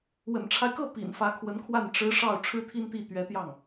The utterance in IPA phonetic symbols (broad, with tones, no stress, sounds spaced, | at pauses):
w ə̰˨˩ n ʈ͡ʂʰ a˦ ɪ̯ k ɤ˥˩ p ḭ˨˩ n f ä˧˥ kʰ w ə˧˥ n kʰ w a˥˩ n ʈ͡ʂ ɻ̩˧˥ ʂ ɑ˥˩ ʊ̯ ʈ͡ʂʰ ɻ̩˥ t̪ʰ i˥ n t̪ i˥˩ t̪ ɥ ɛ˧˥ t̪ j ɑ˥˩ ŋ